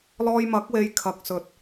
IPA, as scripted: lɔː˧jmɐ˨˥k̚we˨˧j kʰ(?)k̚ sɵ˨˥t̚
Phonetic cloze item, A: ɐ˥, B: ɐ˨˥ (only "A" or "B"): B